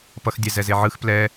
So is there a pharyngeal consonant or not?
yes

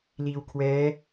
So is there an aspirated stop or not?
yes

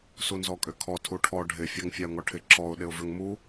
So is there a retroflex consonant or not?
yes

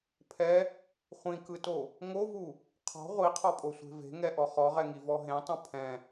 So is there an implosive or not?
no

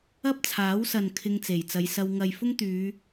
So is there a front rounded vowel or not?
yes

